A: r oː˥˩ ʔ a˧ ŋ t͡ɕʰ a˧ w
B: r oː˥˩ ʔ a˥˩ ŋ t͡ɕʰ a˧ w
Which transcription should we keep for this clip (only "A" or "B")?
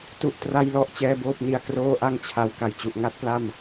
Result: B